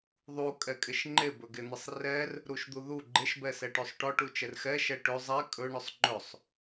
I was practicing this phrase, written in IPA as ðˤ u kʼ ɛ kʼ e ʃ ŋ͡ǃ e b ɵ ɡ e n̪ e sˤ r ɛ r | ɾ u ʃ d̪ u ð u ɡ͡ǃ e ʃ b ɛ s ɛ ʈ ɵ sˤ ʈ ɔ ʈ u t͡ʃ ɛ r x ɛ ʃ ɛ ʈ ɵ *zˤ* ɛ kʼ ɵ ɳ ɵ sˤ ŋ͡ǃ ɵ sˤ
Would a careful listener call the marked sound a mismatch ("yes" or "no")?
no